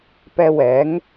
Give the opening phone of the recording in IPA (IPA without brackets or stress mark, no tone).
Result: p